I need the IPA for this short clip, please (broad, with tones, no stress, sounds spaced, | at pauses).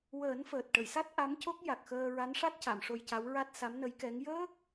w əː˨˩˦ n f əː˨˩ t̚ ʈ ə˨˩˨ j s a˦˥ t̚ ʔ a˧˥ m c o˦˥ k̚ j a˨˩ k̚ x əː˧ ɹ a˧˥ n ʂ a˦˥ t̚ c a˨˩˨ m ʂ o˧ j c a˧˥ w ɹ a˦˥ t̚ s a˧˥ m n ə˧˥ j k ɛ˧˥ ŋ j əː˦˥ k̚